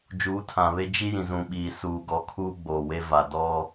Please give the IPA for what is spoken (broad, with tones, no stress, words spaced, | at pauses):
d͡ʒuː˨˦tʰã˨βe˦ d͡ʒi˦jĩ˨ zũ˨ɓiː˨ suː˨ɡɔ˨˦ kʰuː˦ɡ͡boː˨we˦va˨ dɔ˦